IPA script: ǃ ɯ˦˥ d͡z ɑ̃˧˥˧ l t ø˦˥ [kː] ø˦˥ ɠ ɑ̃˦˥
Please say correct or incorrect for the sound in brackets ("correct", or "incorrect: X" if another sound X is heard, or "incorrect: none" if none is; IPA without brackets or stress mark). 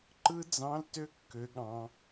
correct